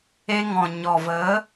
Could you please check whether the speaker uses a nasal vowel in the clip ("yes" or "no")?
yes